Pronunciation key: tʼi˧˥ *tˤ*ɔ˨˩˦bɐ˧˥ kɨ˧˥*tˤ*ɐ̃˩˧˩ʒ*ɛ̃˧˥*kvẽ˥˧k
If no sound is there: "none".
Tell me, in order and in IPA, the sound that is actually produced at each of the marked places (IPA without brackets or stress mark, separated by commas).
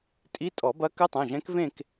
tʼ, tˤ, ɛ̃˧˥